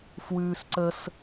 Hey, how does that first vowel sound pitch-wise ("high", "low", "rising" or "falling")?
high